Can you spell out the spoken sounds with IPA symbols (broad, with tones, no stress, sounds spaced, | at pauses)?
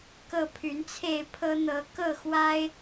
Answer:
k ɤ˥˨ pʰ y˨˦ n t͡sʰ e˥˨ ɪ̯ pʰ ɤ˦ n̪ ɤ˨˦ k ɤ˥˨ x w a˦ ɪ̯